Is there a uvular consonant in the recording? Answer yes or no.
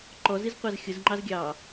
yes